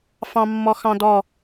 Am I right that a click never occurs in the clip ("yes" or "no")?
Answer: yes